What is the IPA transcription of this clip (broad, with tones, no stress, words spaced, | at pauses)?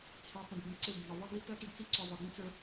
hi˨tˤə̃˨ɖ ɡə̃˨ ǀɪ˦˨bɪ˨ɳə˨ ðˤɪ˦ ɡi˦tʌ˦ tə˦ɖt͡si˦ǀʊ˨ zˤʊ˨ɡĩ˦t͡sə˞˦